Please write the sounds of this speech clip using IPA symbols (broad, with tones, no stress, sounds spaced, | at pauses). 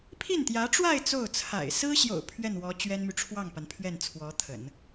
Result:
pʰ i˥˩ n t̪ j ä˧˥ ʈ͡ʂ w a˥˧ ɪ̯ t͡s o˥˩ ʊ̯ t͡sʰ a̰˨˩ ɪ̯ s ɹ̩˥ ɕ j o̰˨˩ ʊ̯ pʰ ɥ ɛ˥˩ n w ɔ˧˥ t͡ɕ ɥ ɛ˥ n m y˨ ʈ͡ʂʰ w ɑ˥˩ ŋ p a˩ n pʰ ɥ ɛ˥˩ n t͡sʰ w ɔ˧˥ t̪ʰ ə̰˨˩˦ n